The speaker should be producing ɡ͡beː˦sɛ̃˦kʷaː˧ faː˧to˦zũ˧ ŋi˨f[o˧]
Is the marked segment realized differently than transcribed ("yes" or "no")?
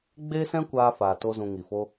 yes